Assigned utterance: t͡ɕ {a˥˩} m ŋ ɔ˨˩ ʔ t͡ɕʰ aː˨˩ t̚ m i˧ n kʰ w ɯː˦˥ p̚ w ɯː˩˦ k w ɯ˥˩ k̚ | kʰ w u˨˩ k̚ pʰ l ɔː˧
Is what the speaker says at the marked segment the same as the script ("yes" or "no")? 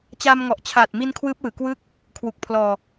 no